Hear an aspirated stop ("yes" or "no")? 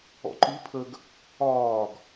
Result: yes